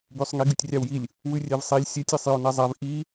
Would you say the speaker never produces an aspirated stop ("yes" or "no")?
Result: yes